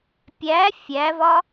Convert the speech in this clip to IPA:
pʲ æ fʲ æ v ɒ

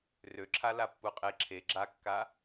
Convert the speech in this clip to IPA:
r ø ǁʰ a l a pː u qʼ e ǁʰ e ɡ͡ǁ a kː a

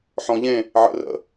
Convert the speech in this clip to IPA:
ħ ɔ̃ ʎ ẽ | ʕ ə̰ r ə̰

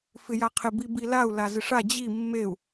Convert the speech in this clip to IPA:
f ɪ j a qʰ ɪ b i b i l a u̯ l a z ɪ ʂ a d͡ʑ i mː e u̯

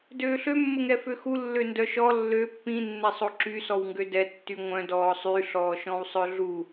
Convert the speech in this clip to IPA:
d øː ɬ ø mː ə ŋ ɛ f ø x u lː ø n d œ ʃ ɔ lː ø pː ĩ nː ɛ sˤ o ǁ y s ɔ w ŋ ɡ ø d ɛ tː y ŋʷ œ̃ d ɔː sˤ y ɬ ɔː ʃ ɔ̃ w sˤ œ ɮ u

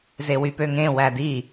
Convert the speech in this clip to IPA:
z e w y p ø ŋ ẽ w æ d i

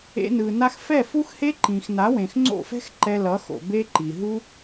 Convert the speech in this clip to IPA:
ḛ˧ n ɯ˨ n a˧ x f ɛ˦˨ f u˦ x h e˦ ǃ ĩ˨ x n a˨˦ w ẽ˨ x ŋ͡ǀ o̰˦˨ f ɛ̤˦ x ǃ ɛ˧ l ʌ˨˦ x o̰˨ b e˦ ǃ i˨ ɦ u˦

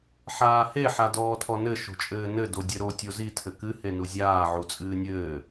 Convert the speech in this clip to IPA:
ħ aː h e ħ a d ɔː tʰ ɔ n ɘ ʃ o̤ t͡ʃʼ ɘː n ɘ d o dʲ ɘ ɾ o tʲ o z i tʰ ɘ k ɨ h e n u zʲ aː ʕ u t͡sʼ ɨː nʲ ɘː

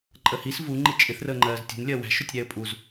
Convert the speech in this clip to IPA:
ǃʼ ə h i s v u ŋ͡ǃ i t͡ʃʼ ɪ θ r əː ŋ͡ǃ ɜː z tʲ ṳ n lʲ ɜ w æ̤ ʃ ʊ tʲ ɾʲ æ ə̯ pʼ u z

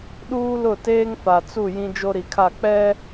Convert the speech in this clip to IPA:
ɗ uː˦ l ʊ˦˨ t eː˦ ŋ f a˨ t͡s u˦˨ j ĩ˦ d͡ʒ o˦ ɾ i˨ kʰ a˦˨ k͡p ɛ˦

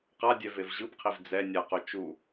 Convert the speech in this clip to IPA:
q a dʲ ɛ v e v ʑ ɯ b qʰ i v d͡z ɛ nʲ a q o t͡ʃ u

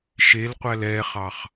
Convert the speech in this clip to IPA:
ʃ e l qʷ æ l ɛ χ ɑ χ

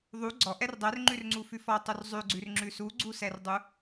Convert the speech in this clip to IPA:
ðˤ u ɡ͡ǀ ɔ ʔ ɛ r dˤ ɛ r ŋ͡ǃ ʉ r ŋ͡ǀ u f ʉ f ɔ tˤ u r zˤ ʉ ɡ͡ǀ ʉ r ŋ͡ǁ ʉ s u ɡ͡ǀ u s ɛ r dˤ u

